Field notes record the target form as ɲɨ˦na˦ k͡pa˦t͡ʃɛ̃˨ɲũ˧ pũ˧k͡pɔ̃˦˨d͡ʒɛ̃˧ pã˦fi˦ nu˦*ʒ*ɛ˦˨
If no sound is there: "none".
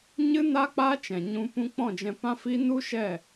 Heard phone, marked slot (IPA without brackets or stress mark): ʃ